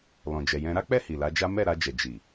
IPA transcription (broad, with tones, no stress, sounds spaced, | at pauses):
l ɔ̃˨ d͡ʒ ɛ˨ j ɛ̃˧ ɾ a˦ k͡p ɛ˦˨ h i˨ l a˨˦ d͡ʒ a˦ m ɛ˦˨ ɾ a˧ d͡ʒ ɛ˨ d͡ʒ i˨